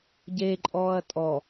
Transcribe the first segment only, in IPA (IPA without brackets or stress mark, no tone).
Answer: ɟ